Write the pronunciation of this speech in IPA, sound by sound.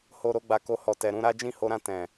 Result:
h o˨ ɾ o˨˦ ɡ͡b a˧ k o˧ h ɔ˨ t ɛ˨ ɾ ũ˧ ɾ a˦ d͡ʒ ĩ˦˨ h o˧ ɾ ã˧ t ɛ̃˨

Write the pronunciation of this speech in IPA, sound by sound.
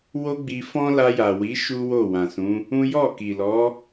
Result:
w o˦ ɡ͡b i˧ f ɔ̃˦ l a˧ j a˨ w i˨˦ ʃ u˦ w o˦˨ w ã˨ s ũ˨˦ | ũ˦ j ɔ˦˨ k i˨ l ɔ˨˦

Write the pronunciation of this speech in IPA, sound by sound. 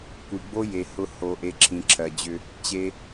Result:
kʷ i˨ ɡ͡b o˦ j e˨ h ʊ˦ h o˨ ʔ e˨ ǁʰ ĩ˨ ǁʰ ɜ˨ d͡ʑ ʏ˦ | t͡ɕ e˦

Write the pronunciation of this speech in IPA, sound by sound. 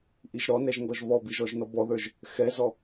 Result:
ʔ i ʒ ɾ ɔ n ɛ ʒ ŋ ɡ ɔ ʒ β ɔ b i ʒ ɔ ʒ n ɔ b ɔ ð ə˞ ʒ | x ɛ z ɔ

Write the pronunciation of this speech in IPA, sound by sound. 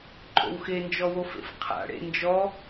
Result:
ǃʼ o̰ w x e n d͡ʒ ɔ w o f ḛ f qʰ a̰ ɽ ḛ n d͡ʒ ɔ

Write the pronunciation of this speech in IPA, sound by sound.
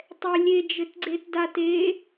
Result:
tˤ ɛ lʲ e d͡ʒ ɘ t ɡ͡ǀ e t d a t e

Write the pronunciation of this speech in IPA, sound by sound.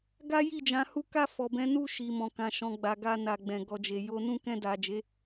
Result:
ɡ a˦ j i˦˨ d͡ʒ ã˨˦ h u˦ k a˦˨ f ɔ˨ b ɛ̃˨˦ n u˦˨ ʃ i˨ m ɔ̃˨ k ã˨ ʃ ɔ̃˨ ɡ͡b a˨ ɡ a˧ n a˨ ɡ͡b ɛ̃˨ ɡ ɔ˨ d͡ʒ e˨ j o˧ n ũ˦ k ɛ̃˧ d a˨ d͡ʒ e˨˦

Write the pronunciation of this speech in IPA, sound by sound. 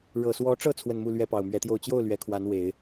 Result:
ɻ ɤ˨˩ s w ɔ˧˥ ʈ͡ʂ ɤ˥˧ t͡sʰ w ə˥˧ n m u˥˩ l ɥ ɛ˥ p ɑ˨˩ ʊ̯ m ɥ ɛ˧˥ t̪ j o˥˧ ʊ̯ t͡ɕ j o˥˩ ʊ̯ l ɥ ɛ˧˥ kʰ w a˧˥ n w e˨˩˦ ɪ̯

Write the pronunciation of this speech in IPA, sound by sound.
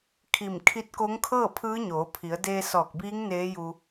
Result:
kʰ i˧˩ m kʰ i˧˥ t̚ k o˧˥ ŋ kʰ ɤː˥˨ pʰ ɯː˧˥ ɲ oː˩˧ pʰ i˩˧ ə̯ d eː˧ s ɔː˧˩ k̚ b iː˧˥ ŋ n eː˧˥ j u˧

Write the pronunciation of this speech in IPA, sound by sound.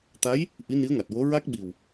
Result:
t̪ a˧˥ j | ʔ i˧˥ n i˧˥ ə̯ ŋ a˨˩ t̚ w o˧˥ ɹ a˦˥ k̚ ɓ i˨˩ w

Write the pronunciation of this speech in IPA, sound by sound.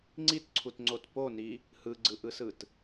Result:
ŋ͡ǀ i t ǀʰ u t ŋ͡ǀ o t p o n i | h ɯ ɡ͡ǀ ɯ ʔ ɯ s ɯ t

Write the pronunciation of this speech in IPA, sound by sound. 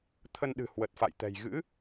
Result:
t̪ʰ ə˧ n ɗ ɨ̤˨˩ h w ə˨˩ t̚ f a̰˧˨ j t̪ ɛ̤˨˩ j ɣ ɨ̰˧˥

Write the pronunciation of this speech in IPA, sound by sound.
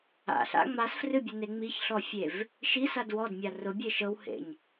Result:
a̰ ɬ a̰ ŋ͡m a s f r ɨ bʲ ʊ n e ŋ͡m i ç ɬ ɔ fʲ e v | ʃ i s a d w ɔ d mʲ a r ʊ bʲ e ʃ ɤ w h ḛ ɲ

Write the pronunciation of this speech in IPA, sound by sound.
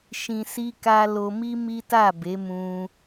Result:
ʃ ĩ˧ s i˦ k a˦ l o˧ m i˦ m i˦ t a˦˨ b e˨˦ m ũ˧

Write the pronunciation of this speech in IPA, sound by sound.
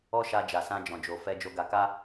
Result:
ɔ˦ ʃ a˧ d͡ʒ a˨ s ã˧ d͡ʒ ɔ̃˨ d͡ʒ o˨ f ɛ˧ d͡ʒ o˧ ɡ a˧ k a˦

